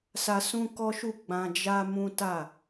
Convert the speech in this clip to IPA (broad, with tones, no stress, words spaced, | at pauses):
sa˧sũ˦kɔ˦ʃu˦˨ ɡ͡bã˧d͡ʒa˦mũ˦ta˦˨